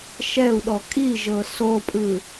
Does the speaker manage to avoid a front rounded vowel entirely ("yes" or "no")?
yes